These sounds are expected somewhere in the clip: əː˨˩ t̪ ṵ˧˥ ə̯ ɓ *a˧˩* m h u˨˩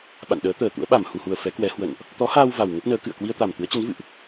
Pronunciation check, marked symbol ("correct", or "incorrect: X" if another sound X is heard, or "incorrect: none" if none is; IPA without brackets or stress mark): correct